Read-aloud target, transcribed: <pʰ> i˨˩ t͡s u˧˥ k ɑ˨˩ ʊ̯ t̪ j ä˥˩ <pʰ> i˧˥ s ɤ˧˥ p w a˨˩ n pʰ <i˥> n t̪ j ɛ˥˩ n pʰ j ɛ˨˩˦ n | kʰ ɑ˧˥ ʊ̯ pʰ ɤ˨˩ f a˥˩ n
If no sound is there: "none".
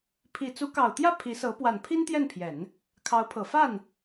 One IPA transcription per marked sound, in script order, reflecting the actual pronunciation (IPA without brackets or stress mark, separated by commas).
pʰ, pʰ, i˥